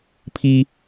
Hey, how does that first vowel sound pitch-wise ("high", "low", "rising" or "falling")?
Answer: high